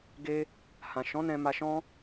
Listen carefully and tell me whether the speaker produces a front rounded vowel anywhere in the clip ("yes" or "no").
no